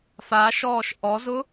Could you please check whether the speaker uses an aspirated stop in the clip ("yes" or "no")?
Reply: no